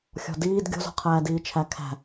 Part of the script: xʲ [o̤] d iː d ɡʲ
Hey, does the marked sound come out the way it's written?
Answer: no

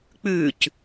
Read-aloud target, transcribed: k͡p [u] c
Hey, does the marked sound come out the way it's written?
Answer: no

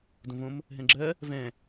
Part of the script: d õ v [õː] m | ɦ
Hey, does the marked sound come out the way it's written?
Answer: no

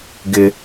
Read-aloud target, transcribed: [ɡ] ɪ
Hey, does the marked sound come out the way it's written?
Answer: yes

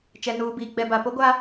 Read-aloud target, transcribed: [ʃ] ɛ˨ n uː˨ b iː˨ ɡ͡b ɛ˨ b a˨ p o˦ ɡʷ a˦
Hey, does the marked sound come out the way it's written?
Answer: no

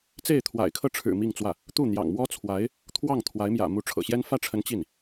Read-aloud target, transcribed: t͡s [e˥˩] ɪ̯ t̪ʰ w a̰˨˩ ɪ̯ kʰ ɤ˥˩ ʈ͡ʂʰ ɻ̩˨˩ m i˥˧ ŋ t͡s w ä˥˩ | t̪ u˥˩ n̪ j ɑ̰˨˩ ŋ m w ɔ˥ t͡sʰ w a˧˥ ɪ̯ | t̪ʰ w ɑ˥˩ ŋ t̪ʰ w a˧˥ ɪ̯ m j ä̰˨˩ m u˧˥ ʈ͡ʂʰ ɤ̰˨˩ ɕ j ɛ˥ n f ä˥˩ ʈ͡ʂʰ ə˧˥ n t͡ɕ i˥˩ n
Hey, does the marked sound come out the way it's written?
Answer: yes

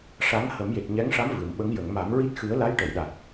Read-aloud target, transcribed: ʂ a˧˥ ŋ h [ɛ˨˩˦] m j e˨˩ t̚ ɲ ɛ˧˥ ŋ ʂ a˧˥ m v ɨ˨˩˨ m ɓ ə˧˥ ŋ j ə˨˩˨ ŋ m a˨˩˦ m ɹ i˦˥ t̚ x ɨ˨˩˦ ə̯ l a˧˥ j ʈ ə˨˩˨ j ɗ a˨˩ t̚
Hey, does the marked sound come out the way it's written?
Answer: no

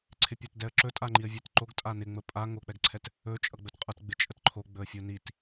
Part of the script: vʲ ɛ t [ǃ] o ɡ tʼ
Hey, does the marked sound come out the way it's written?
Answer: yes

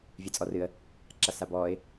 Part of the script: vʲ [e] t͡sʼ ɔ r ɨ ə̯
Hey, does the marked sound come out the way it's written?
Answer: no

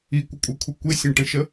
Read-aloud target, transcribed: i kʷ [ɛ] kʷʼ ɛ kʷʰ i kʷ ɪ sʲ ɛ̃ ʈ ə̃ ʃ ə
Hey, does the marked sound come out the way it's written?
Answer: no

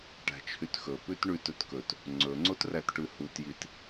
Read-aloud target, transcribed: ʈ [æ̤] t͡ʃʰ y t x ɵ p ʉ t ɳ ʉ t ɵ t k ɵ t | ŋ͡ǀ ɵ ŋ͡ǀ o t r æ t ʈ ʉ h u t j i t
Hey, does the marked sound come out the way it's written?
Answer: yes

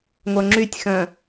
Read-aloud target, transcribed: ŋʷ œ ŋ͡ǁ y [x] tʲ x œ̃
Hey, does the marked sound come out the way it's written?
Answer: no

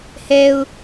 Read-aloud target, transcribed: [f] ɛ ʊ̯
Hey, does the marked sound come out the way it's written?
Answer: no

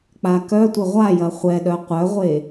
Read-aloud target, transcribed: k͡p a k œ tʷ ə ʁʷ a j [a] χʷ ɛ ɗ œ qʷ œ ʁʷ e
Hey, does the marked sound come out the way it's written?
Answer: no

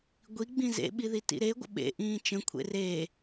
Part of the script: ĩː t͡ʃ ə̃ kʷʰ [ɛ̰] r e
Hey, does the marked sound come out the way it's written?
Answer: no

